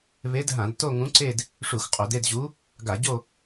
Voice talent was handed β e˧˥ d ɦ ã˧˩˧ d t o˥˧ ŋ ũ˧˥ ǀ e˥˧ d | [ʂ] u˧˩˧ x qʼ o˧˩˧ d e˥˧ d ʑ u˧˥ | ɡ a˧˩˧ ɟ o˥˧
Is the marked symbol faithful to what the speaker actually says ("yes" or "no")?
yes